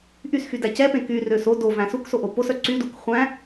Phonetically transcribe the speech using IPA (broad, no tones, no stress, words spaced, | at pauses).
ʔysxydæ cɛpẽ kyrøs o dovæ̃ suksoʔo posœ ǀyduk χʷæ̃